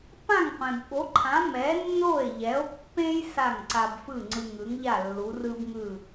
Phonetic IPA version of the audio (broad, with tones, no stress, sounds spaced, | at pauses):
p ã˥˩ ŋ qʷ ẽ˩ b ɓ o˩˥ ǃʰ ã˩˥ m ɛ˩˥ nː o˥˩ e̯ ʎ ɛ˩˥ o̯ pː ẽ˥ j s a˥˩ ŋ ǀ a˧ b f ɯ˥˩ ŋ͡ǀ ɯ˧ ŋ ɯ˩˥ ŋ ʎ a˥˩ lː u˩˥ r ɯ˥ b ŋ ɯ˥˩